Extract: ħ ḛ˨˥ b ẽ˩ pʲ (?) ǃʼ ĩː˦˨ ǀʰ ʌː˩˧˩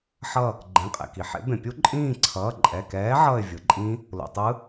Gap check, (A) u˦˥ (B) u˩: A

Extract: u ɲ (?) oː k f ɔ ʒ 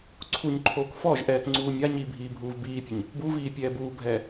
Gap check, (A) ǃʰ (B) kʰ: A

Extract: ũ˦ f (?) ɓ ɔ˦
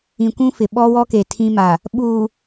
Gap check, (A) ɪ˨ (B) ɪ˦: A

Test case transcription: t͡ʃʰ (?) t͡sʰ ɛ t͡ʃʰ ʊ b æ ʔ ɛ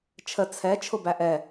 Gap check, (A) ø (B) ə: B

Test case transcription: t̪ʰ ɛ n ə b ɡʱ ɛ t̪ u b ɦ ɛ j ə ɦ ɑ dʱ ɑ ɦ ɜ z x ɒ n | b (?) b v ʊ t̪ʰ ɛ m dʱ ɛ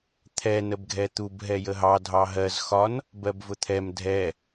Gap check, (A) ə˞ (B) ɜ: B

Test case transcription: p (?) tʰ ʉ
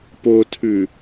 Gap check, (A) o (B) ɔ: A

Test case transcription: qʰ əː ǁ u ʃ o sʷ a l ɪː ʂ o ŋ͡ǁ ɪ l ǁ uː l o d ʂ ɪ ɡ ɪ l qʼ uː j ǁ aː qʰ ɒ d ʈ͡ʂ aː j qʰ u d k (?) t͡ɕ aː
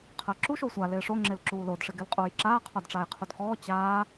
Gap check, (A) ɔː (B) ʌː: A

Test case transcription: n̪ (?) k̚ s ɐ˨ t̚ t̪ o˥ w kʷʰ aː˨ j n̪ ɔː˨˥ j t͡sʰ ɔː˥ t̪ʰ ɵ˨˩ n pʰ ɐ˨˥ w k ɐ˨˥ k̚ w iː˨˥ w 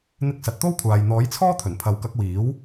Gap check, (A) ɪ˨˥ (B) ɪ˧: B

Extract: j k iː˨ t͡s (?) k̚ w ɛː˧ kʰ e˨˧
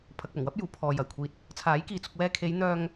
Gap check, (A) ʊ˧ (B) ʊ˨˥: A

